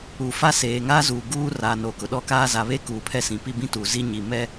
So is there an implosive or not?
yes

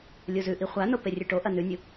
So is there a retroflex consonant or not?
yes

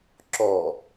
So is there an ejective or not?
no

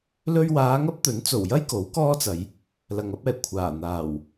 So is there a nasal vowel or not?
no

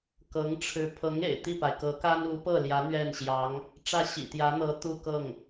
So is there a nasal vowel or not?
no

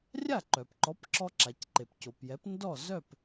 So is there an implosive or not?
no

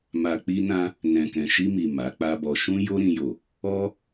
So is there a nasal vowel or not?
yes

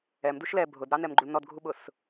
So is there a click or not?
yes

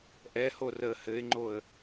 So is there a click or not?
yes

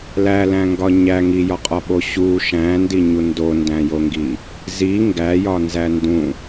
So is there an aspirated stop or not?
no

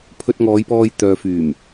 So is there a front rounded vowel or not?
yes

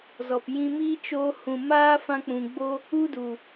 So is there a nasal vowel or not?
yes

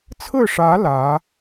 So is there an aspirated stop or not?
yes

